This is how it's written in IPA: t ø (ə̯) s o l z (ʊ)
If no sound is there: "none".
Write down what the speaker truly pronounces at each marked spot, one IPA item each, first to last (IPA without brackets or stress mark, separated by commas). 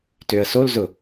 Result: ə̯, ʊ